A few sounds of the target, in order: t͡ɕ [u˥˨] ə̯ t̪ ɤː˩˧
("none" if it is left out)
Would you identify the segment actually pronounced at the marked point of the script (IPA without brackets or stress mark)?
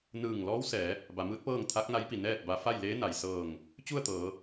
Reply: u˥˨